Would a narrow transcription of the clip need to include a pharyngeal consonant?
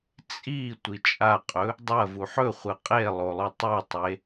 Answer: yes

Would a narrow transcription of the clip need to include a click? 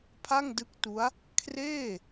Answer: no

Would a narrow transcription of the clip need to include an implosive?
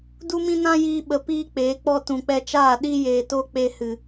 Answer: yes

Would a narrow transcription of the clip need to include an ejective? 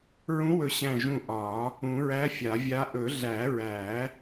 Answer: no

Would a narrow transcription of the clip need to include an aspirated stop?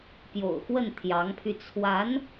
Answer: yes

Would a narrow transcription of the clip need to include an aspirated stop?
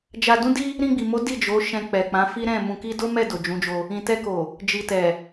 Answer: no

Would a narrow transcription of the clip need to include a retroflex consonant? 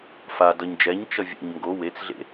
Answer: no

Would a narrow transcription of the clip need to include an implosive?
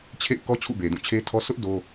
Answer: no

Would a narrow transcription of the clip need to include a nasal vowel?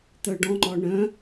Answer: yes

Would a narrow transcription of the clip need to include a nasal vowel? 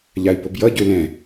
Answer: yes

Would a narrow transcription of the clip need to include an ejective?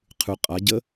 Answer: yes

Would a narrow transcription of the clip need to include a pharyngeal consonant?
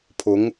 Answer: no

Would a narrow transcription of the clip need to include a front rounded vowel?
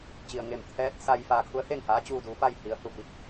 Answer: no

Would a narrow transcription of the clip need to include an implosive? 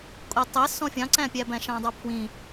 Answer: no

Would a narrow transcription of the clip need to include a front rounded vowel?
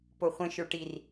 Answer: no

